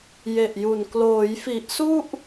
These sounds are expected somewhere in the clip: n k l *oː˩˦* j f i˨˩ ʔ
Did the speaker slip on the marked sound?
no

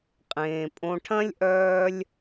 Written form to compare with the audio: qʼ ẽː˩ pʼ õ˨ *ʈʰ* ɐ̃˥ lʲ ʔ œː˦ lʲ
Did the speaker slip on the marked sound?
no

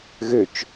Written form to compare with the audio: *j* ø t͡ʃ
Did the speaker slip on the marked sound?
yes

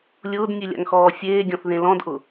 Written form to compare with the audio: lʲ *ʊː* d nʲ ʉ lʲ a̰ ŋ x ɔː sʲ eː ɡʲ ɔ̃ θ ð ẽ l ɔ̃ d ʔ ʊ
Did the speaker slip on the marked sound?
no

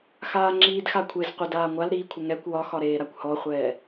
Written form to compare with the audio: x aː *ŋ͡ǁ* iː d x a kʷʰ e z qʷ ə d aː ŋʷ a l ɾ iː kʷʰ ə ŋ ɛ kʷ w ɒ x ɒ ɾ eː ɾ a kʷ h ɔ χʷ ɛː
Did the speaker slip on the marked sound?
no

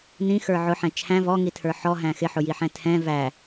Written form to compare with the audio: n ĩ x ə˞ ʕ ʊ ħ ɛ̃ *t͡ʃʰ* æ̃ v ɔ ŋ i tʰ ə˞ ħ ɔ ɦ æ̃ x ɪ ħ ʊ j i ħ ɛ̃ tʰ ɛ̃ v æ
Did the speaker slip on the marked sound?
no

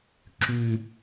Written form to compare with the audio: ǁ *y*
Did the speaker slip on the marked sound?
no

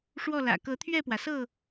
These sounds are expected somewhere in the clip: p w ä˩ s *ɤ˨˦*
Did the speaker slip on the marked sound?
yes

